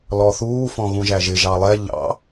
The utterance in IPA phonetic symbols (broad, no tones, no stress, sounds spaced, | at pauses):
l ɔ θ uː f ɔ̃ ɣ ũ ʒ æ ʒ ɪ ʒ ɑ lˠ ɛ ʎ ɑ̰